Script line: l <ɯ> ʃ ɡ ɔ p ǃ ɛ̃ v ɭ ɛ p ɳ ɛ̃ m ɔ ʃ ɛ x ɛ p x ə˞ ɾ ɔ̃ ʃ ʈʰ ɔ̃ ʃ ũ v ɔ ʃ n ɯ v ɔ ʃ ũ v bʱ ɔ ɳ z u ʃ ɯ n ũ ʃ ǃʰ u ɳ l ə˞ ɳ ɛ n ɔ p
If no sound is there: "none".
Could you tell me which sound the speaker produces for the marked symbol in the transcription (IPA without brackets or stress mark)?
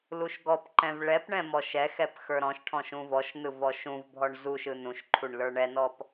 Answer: u